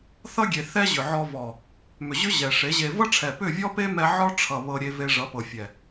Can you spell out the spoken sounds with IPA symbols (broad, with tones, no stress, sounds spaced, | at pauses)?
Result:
θ ʌ˦ ɡʲ e˨ θ ɛ˦ ʑ ʏ˨ ʕ ɔ˧ v ɔ˨ | m ʏ˨ ʑ ʏ˦ ʑ ɛ˨ ʂ e˨˦ ʑ e˧ v ʌ˦ ʈ͡ʂʰ ɛ˨ p ʏ˦˨ vʲ ɔ˦ p e˦ m ɛ˧ ʕ ɔ˦ ʈ͡ʂʰ ʌ˨ β ɤ˧ ɾʲ e˧ v e˧ ʐ ʌ˨˦ p ɤ˨ fʲ ɛ˨